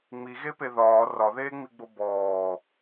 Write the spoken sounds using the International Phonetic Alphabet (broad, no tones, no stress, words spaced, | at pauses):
ŋ͡miɣepe ðɒː rɒðeːŋ͡miɡ͡bo bɔː